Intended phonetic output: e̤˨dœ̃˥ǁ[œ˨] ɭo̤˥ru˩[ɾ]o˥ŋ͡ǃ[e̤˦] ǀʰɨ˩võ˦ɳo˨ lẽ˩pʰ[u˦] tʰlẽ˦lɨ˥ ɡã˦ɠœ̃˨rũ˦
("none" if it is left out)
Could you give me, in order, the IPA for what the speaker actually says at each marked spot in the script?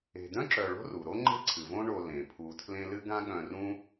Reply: œ˨, ɾ, e̤˥, u˨

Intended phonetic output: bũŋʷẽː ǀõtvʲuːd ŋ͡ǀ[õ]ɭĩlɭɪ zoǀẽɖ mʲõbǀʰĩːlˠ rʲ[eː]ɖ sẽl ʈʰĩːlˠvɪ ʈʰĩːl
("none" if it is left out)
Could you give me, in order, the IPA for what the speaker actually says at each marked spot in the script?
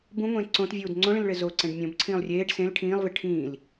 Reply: õ, eː

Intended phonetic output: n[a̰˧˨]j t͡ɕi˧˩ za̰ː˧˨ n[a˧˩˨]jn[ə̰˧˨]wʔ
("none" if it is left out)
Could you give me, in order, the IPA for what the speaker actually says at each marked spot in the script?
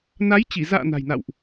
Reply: a˨˦, a̤˨˩, a̰˧˨

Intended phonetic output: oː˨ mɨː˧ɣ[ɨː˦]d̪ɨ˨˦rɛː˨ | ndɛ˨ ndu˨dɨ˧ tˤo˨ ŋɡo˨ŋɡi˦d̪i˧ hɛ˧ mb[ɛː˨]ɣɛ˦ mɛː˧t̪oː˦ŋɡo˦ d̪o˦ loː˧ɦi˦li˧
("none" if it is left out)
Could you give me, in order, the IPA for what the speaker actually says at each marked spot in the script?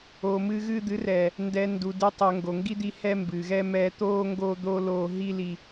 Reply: ɨː˧, ɨː˨

